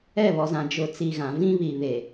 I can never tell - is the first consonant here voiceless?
no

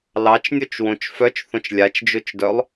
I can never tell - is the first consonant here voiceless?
no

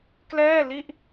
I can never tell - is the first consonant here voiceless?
yes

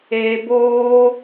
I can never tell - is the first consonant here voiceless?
no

